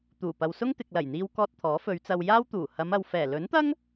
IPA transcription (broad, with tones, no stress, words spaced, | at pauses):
t̪uː˨˩ pɐ˨wsʊ˥ŋ t̪ɪ˨k̚lɐ˨˩jn̪iː˧wkɔː˧t̚ t̪ʰɔː˨˥fɵ˨˧ɥt͡sɐ˧w jaː˥w t̪uː˨˩hɐ˨˧mɐ˨w fɛː˨˩lɵ˨˥nt̪ɐ˥ŋ